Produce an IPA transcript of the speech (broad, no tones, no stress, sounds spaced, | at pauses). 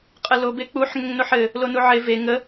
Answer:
qʼ ə l o b e k͡p u ħ ŋ ə ŋ n o ħ ɘ | l o n u ʕ e v e ŋ ə